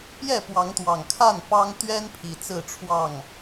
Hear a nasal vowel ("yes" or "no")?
no